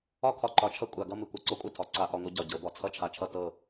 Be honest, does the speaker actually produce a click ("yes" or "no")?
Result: yes